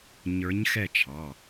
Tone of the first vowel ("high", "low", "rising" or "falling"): rising